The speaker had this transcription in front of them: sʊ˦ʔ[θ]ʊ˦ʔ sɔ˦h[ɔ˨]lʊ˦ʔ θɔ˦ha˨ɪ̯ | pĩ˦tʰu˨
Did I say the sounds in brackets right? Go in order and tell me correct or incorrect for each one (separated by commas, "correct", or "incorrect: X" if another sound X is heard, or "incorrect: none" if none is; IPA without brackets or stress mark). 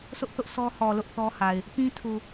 correct, correct